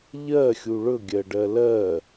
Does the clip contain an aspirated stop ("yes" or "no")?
no